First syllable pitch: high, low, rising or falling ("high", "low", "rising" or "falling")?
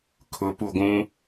rising